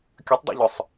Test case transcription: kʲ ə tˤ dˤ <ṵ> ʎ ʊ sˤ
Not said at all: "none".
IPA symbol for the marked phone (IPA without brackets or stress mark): ṵ